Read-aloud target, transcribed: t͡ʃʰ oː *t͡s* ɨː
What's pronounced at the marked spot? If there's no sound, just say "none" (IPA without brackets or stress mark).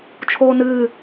n